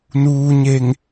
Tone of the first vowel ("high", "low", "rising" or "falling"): low